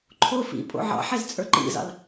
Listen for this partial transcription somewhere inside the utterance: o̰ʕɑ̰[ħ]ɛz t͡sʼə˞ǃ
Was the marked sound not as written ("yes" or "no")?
no